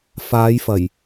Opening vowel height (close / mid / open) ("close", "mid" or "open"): open